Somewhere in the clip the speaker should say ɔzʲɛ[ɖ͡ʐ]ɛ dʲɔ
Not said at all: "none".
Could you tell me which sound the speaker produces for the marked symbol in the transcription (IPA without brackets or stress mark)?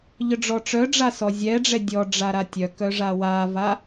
ɖ͡ʐ